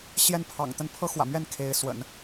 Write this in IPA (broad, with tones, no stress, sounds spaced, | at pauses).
ɕ j ɛ˥˩ n pʰ ɑ̰˨˩ ŋ t̪ ə˥˩ n pʰ ɤ˥ x w ä̰˨˩ m ɥ ɛ˥˩ n kʰ e˧˥ ɪ̯ s w ə̰˨˩˦ n